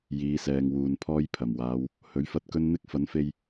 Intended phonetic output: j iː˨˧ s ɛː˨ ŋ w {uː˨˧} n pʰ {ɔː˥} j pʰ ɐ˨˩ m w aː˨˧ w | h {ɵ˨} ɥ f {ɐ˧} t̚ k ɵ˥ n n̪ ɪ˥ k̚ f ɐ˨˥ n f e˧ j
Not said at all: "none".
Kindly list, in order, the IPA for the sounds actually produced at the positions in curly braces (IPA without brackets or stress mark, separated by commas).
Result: uː˨, ɔː˥, ɵ˨˥, ɐ˧